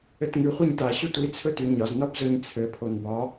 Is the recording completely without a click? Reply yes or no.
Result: yes